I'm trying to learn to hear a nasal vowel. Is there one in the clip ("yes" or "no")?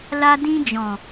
yes